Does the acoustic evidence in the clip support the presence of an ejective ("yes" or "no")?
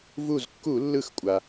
yes